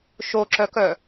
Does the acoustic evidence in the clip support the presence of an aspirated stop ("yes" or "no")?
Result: no